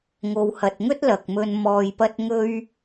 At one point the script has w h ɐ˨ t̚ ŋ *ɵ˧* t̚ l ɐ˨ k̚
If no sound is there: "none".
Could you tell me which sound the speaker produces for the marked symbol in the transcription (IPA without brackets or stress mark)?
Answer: ɵ˥